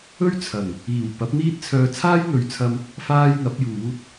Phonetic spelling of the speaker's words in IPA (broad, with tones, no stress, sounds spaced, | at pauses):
ɵ˥ ɥ t͡sʰ ɐ˨˩ ŋ | iː˨˩ w p ɐ˨˥ p̚ n̪ iː˥ t̚ t͡sʰ œː˧ t͡sʰ aː˥ j n̪ ɵ˨˧ ɥ t͡sʰ ɐ˧ m | f aː˧ j ŋ ɐ˨˥ p̚ j uː˨˥ t̚